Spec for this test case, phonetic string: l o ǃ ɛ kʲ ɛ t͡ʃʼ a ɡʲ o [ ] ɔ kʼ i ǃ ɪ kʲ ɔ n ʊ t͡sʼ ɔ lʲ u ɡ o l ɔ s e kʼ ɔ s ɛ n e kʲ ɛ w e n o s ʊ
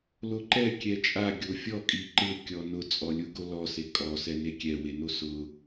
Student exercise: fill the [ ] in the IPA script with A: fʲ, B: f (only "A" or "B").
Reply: A